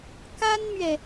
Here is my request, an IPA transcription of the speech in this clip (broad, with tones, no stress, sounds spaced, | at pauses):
k a˥ n m ɥ ɛ˨